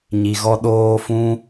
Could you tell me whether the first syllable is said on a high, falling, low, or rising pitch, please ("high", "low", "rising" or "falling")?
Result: low